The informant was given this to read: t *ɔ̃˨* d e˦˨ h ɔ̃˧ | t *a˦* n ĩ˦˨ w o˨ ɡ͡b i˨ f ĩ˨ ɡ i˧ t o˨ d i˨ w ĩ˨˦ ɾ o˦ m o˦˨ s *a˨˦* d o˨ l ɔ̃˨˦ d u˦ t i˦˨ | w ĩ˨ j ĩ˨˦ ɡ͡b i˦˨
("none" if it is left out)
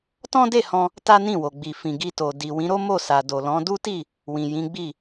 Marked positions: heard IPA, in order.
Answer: ɔ̃˦, a˦, a˨

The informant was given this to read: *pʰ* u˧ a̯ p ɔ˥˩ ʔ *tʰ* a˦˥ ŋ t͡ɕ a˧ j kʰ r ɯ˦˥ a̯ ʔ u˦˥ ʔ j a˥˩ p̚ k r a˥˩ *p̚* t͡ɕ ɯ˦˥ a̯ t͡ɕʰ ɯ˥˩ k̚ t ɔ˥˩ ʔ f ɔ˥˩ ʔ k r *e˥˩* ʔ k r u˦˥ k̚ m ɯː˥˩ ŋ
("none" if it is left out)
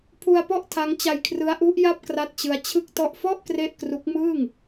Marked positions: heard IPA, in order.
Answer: pʰ, tʰ, t̚, e˥˩

